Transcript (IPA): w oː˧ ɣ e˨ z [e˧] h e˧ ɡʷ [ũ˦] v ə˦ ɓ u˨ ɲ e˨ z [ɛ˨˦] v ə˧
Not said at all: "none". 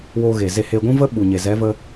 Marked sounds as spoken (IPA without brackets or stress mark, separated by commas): e˧, ũ˦, ɛ˨˦